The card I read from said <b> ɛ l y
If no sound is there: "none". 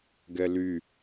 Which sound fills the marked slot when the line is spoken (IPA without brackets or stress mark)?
ɡ